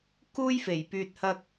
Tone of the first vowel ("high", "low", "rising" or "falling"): high